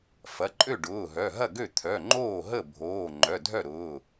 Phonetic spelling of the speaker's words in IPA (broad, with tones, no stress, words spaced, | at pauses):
fɐ˩˧˩ǃʼø˥˩ɖʊː˩˧˩ɦœ˩˧˩ ɦɐ˥˩ɡø˥˩t̪ʰœ˩˧˩ ŋ͡ǃoː˥˩ɦə˥˩bʱoː˩˧˩ ŋ͡ǃœ˩˧˩dʱœ˥˩ɾʊː˩˧˩